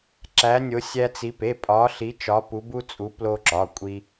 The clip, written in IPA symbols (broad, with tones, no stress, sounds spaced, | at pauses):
ǁ æ˨˦ nʲ o˨˦ sʲ æ˦ t͡s i˨˦ p e˩˧˩ pʼ ɒ˨˦ ɬ i˨˦ t͡ʃ ɒ˨˦ p u˨˦ b u˦ t͡sʼ u˨˦ p l o˦ ǁ ɒ˩˧˩ kʷʼ i˦